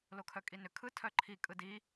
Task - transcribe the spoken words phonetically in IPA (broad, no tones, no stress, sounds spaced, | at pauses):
l o kʰ œ kʼ i n ʏ kʰ ɯ tʰ œ ǃʰ i kʼ ɯ d i